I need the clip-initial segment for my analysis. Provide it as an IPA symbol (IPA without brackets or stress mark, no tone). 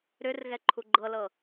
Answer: ɾ